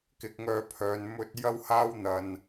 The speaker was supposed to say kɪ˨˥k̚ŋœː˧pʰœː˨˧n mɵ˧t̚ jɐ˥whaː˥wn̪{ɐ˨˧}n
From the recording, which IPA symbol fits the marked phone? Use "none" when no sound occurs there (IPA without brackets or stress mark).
ɐ˧